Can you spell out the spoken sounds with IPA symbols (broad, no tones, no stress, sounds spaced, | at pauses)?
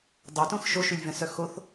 dˤ o t õ x ʃ o ʃ y lʲ v ɛ̃ s œ x o θ